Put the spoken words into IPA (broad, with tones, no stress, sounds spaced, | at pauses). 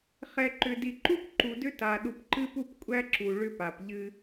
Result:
χ ɛ˨ ǃ ʏ˨ d i˨ ǃ u˦ p ǃ u˨ d ʏ˦ t a˨ ɗ u˨ p ǃ ɨ˦ p u˦ p kʷʼ æ˦ ǁ u˨ ɭ ʏ˦ p a˨ p ʎ ɨ˦